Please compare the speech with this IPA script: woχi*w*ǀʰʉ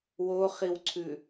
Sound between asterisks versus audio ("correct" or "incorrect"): correct